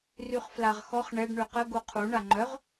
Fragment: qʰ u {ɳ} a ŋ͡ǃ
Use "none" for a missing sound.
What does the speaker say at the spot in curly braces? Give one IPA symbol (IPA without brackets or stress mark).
ɳ